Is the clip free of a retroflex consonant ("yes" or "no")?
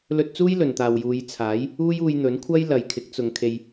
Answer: yes